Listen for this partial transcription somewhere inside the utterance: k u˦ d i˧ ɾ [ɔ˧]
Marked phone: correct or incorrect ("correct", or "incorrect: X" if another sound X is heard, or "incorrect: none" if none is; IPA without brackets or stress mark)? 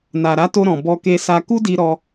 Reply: correct